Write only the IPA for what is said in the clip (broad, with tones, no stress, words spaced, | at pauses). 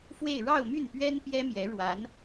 fwe˥˧ɪ̯ ɻɑ˥˧ʊ̯my˥˩npɥɛ˥n pjɛ˥mjɛ˧˥ ɻwa˧˥n